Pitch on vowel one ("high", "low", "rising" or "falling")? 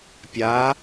rising